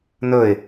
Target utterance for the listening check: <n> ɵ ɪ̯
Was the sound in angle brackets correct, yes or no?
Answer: yes